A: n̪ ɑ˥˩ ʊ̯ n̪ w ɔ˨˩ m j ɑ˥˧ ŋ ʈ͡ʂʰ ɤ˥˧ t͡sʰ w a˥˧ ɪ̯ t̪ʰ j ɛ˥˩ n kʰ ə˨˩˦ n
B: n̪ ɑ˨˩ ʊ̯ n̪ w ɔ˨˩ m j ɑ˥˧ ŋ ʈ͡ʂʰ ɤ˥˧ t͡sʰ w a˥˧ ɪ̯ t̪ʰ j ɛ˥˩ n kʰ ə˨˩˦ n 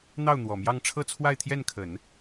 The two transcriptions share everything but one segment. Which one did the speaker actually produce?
A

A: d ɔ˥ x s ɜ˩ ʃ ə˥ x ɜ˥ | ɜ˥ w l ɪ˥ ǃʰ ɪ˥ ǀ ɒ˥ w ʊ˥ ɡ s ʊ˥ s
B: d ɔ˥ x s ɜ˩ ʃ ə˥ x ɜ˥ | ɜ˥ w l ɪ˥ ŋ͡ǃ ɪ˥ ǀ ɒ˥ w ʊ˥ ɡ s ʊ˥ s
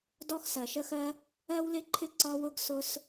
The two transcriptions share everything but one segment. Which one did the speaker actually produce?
A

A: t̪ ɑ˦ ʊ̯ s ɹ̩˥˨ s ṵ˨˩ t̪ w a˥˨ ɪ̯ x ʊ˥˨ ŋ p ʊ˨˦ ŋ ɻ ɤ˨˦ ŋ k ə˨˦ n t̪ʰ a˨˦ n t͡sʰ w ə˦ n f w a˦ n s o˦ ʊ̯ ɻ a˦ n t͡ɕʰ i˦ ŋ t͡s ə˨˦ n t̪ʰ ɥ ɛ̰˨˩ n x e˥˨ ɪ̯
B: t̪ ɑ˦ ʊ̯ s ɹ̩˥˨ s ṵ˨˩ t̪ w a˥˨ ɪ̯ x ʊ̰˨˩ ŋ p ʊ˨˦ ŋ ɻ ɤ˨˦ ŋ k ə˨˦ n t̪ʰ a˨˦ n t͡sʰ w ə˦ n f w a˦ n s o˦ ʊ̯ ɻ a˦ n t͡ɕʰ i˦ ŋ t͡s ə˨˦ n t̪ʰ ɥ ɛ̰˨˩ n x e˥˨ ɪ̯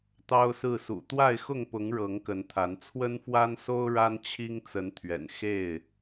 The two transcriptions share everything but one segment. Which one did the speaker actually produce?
A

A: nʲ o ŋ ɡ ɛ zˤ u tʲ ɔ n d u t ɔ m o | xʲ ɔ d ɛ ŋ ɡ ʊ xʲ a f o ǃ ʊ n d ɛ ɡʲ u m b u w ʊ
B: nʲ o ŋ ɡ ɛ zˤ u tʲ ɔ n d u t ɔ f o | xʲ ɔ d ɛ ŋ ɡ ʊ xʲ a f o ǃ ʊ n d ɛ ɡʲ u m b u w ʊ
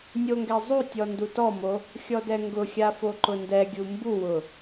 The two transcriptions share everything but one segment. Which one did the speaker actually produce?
A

